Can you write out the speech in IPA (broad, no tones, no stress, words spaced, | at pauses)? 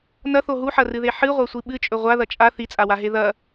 nɐθo ɦuħɐrɨðe ħɨʁʷasʷi ɓɨt͡ʃʼɵ ʁʷaðɐ t͡ʃʼa θit͡sʼawaɦe ðɐ